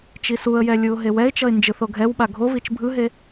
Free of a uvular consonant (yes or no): yes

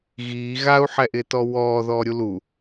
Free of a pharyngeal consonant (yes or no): no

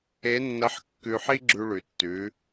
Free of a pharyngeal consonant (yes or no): no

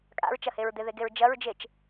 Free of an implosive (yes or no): yes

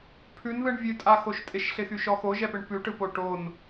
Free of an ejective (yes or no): no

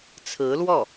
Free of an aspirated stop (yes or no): no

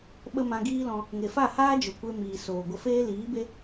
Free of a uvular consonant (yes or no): yes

